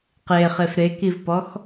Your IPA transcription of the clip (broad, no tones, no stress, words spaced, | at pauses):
qeχef ɾekivpɔx